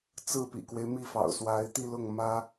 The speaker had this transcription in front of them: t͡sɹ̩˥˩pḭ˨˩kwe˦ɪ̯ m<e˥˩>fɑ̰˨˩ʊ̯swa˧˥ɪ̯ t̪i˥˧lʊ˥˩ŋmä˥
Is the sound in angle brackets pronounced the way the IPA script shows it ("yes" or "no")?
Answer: no